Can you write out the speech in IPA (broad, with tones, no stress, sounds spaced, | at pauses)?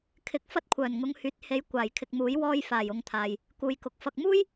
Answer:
kʰ ɪ˨˥ k̚ f ɐ˥ t̚ kʷʰ œː˨˩ n ŋ ʊ˨˧ ŋ h yː˨˥ t̚ h e˨˧ j kʷ aː˨˩ j kʰ ɪ˨ k̚ m uː˨˥ j w ɔː˧ j f aː˨˩ j ʊ˨˧ ŋ t̪ʰ aː˨ j | k uː˨ j k ʊ˨˥ k̚ f ɐ˧ k̚ m uː˥ j